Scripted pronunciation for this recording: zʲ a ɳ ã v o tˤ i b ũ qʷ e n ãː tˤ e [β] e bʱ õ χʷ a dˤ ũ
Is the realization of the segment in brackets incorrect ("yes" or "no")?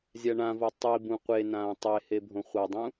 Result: yes